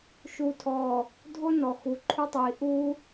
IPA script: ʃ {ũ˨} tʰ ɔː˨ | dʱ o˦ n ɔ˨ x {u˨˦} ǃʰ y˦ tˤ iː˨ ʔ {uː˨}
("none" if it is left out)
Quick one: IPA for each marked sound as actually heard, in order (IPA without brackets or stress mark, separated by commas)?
u˨, u˨˦, uː˦